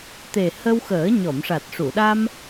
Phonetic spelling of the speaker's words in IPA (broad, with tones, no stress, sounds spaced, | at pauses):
t̪ e˨˩ h ə˧ w x əː˨˩˦ ɲ ɔ˨˩˨ m ʂ a˨˩ t̚ ʂ u˨˩˨ ɗ a˧ m